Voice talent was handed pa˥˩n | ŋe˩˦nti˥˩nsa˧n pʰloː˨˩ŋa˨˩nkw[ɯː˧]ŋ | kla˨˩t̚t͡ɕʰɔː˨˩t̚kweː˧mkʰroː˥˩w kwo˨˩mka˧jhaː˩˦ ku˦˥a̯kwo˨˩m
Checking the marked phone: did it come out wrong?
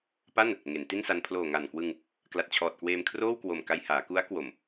yes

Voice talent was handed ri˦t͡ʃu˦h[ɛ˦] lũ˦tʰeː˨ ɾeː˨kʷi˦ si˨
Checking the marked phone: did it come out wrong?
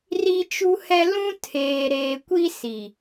no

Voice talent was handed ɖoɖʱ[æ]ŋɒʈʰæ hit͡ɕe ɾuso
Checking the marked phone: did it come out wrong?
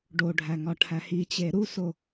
no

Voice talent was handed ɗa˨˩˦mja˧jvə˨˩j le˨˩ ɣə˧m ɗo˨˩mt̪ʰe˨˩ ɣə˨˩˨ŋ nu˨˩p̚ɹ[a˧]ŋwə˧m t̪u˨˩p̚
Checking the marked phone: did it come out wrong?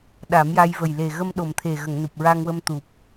no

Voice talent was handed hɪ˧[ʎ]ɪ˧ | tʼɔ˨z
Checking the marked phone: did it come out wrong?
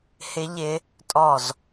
no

